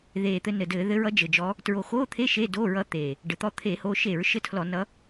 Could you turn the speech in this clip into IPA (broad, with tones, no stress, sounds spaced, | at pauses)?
ð eː˨˩ t̪ ɘ˧ n ɘ˨˩ d ɘː˧˩˧ ð ɘ˧˥ ɹ ʌ˧˥ d͡ʒ ɘ˨˩ d͡ʒ ɔ˧˥ | t ɹ o˨˩ x oː˧˥˧ t̪ʰ e˧˥˧ ʃ e˧˥˧ d oː˧˥˧ ɹ ʌ˧˥ t̪ eː˨˩ | ɖ ɘ˨˩ t̪ ɔ˧˥ t̪ʰ eː˧˩˧ h oː˧ ʃ e˧˩˧ ɹ ʃ ɘ˧˥˧ tʰ l ɔ˧˩˧ n ʌ˧˥